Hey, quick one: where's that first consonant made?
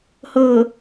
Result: throat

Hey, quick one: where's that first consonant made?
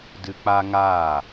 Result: tongue tip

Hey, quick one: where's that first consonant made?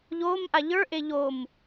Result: palate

